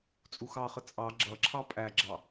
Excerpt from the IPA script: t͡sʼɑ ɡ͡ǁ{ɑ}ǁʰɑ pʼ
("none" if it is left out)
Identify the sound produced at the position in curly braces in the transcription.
ʌ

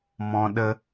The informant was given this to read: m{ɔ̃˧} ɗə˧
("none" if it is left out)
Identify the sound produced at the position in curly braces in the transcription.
ɔ̃˧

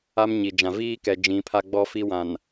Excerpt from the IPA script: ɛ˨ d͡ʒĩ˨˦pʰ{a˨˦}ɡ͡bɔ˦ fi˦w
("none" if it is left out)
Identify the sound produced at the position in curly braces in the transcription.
a˦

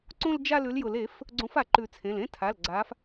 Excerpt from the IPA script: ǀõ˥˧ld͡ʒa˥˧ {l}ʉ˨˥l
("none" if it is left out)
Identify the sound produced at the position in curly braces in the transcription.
l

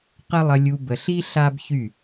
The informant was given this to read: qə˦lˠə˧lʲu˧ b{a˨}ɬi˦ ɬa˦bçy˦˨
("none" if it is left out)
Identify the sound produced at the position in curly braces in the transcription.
ə˨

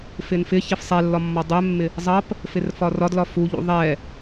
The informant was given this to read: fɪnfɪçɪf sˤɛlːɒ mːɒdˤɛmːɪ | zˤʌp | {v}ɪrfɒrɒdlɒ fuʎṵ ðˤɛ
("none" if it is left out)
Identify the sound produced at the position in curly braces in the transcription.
f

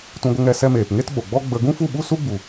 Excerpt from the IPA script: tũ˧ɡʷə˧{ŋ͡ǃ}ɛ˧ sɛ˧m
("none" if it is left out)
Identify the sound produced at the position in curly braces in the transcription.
ŋ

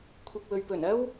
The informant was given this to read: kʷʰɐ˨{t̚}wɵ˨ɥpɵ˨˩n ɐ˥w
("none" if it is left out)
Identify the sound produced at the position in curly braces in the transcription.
k̚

